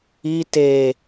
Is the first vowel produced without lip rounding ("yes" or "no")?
yes